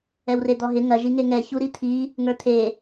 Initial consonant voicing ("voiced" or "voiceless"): voiced